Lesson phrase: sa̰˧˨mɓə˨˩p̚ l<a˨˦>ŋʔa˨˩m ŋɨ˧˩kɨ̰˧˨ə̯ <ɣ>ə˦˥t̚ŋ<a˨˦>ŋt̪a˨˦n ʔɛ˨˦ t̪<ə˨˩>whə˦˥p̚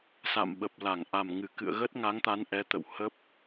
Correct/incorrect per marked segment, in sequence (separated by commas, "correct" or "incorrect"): incorrect, correct, correct, incorrect